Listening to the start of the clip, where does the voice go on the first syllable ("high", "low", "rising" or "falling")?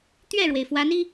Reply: falling